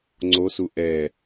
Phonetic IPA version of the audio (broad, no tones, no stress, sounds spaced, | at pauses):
ŋ͡ǀ o s u ʔ ɛ